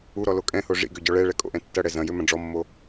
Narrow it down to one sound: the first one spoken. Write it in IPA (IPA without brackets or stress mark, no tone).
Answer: u